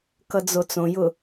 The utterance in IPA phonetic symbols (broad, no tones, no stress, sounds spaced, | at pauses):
k ʌ d͡z o t͡s õ j ʊ